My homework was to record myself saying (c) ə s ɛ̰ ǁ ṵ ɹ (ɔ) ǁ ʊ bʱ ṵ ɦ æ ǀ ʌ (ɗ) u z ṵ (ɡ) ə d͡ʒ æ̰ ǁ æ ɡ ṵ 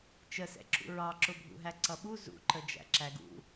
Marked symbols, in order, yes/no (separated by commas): no, no, no, no